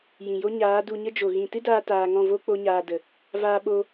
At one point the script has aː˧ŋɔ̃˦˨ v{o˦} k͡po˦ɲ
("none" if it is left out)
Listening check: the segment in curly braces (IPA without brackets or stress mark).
o˦